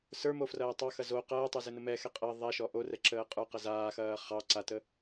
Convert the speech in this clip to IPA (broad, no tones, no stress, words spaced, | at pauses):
sə˞mofrɐː tˤɑxɐ zo qɐːtˤə˞zɘnə mɛxɛ qʼɐ ðˤɛʃɔ ʔorɛǁəː qʼə˞qɐ zaːxɐː χɑ ǀatə